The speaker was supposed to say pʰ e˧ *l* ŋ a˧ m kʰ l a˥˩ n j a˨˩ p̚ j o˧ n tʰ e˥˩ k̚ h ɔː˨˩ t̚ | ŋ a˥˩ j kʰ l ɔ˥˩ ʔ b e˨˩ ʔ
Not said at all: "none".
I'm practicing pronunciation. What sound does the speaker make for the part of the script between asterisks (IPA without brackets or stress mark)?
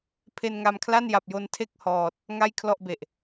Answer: n